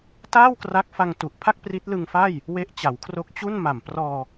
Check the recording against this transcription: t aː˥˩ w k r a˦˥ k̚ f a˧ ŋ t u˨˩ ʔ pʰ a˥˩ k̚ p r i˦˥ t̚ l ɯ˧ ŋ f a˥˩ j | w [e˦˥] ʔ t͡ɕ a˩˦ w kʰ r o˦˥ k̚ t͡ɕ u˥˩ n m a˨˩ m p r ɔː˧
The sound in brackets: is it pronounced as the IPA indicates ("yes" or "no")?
yes